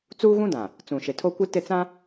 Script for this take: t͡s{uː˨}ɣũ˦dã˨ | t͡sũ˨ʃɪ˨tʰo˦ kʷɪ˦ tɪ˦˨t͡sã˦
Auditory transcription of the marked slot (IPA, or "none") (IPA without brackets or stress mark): uː˦